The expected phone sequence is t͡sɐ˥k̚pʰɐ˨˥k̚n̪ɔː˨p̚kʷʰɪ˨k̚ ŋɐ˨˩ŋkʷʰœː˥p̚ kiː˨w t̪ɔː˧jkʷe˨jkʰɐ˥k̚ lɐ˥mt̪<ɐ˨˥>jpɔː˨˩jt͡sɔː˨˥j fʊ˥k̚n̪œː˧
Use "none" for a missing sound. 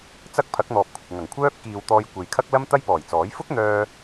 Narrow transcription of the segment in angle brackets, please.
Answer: ɐ˥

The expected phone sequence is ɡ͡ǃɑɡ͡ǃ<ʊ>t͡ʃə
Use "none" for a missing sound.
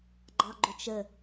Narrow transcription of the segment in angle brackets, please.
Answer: ʊ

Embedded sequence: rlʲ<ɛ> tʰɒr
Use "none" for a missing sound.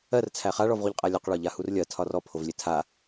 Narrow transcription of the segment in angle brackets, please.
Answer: ɜ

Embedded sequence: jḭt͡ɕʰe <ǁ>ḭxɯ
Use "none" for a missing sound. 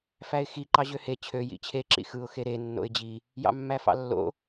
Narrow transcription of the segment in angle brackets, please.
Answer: ǁ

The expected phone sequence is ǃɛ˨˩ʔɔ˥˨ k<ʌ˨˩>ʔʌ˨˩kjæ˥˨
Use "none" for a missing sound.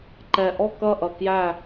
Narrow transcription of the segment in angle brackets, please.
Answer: ʌ˥˨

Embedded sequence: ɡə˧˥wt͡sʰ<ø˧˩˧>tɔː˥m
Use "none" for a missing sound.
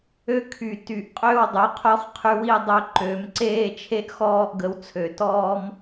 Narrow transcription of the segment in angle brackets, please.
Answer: ø˧˩˧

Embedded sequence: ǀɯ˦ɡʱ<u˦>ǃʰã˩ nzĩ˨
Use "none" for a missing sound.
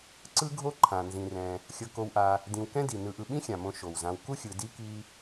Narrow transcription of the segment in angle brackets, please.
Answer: o˦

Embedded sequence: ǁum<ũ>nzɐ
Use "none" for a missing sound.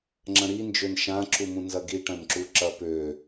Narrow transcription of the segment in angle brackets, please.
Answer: ũ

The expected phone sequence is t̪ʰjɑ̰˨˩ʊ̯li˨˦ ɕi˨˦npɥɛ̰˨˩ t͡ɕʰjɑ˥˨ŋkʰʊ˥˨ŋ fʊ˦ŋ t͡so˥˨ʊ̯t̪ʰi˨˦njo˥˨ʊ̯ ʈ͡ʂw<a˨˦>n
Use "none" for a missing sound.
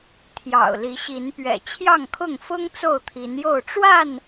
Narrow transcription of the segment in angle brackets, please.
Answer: a˥˨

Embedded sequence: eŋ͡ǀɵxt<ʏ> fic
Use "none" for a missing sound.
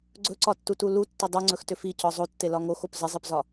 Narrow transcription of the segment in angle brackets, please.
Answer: ʏ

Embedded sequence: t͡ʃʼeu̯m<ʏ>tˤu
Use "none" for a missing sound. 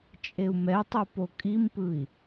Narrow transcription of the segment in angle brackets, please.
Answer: ɛ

